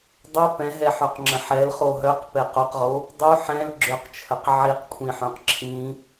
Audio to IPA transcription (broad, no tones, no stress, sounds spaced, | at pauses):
dˤ œ p ɛ̃ ɦ ɛ ħ œ q ŋ͡ǁ ə̃ ħ ɛ l χ o ɦ œ q p ɛ q o q ʁ o | dˤ u ħ ɛ̃ l ɡ͡ǁ ø q t͡ʃʰ ə q ʕ i q kʷʰ ĩ ħ œ̃ q ǁʰ ĩ